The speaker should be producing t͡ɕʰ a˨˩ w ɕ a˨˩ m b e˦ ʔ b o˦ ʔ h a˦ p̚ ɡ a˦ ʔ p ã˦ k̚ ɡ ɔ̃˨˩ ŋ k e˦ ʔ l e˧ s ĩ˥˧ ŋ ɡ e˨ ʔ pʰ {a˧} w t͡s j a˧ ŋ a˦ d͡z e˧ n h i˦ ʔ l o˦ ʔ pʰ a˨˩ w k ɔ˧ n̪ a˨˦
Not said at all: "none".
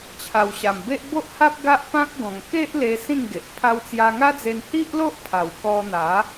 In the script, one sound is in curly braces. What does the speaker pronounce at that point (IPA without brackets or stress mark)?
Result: a˧